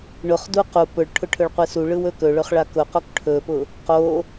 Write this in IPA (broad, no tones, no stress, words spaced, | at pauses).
ɳʊχdu qu pʊɭʈʰʊ ʈʰɵɭqʷɯsuɭɯw ɵkɵɭɵχ ɭakʊqok ʈʰɵpʊ | qo